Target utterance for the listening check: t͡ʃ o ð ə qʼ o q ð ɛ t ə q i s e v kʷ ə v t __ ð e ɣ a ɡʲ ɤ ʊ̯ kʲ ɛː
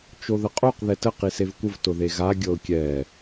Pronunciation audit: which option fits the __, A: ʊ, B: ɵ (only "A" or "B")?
A